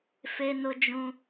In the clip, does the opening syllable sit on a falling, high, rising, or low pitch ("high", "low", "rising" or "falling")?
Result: high